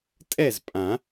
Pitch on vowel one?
falling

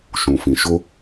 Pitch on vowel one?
low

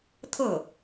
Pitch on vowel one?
falling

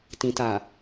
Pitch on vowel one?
low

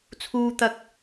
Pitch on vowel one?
high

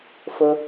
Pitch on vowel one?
high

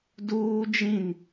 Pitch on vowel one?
high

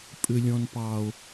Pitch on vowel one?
low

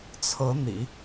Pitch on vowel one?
rising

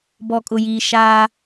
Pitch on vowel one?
low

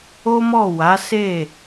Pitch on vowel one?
high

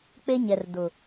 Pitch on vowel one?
high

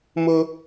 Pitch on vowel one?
high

